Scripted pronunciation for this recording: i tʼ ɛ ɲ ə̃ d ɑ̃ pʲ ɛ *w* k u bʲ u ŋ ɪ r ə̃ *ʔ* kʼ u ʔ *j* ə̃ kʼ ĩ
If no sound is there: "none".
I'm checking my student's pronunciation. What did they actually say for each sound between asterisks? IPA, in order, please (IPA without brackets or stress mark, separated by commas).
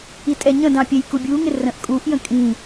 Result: j, ʔ, j